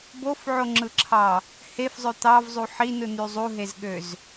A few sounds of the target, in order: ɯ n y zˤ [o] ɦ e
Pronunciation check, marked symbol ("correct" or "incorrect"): incorrect